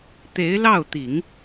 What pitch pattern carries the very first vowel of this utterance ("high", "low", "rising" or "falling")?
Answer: rising